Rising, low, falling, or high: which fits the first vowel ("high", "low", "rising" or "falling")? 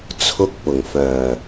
high